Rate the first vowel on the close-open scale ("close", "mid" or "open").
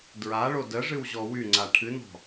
open